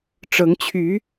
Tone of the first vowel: rising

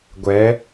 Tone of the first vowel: rising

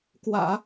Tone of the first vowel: low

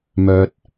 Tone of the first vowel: low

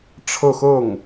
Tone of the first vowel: falling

